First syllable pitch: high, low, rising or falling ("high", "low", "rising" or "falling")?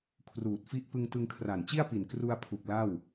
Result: low